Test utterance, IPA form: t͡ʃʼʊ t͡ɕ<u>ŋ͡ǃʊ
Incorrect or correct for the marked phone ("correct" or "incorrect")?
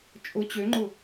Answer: incorrect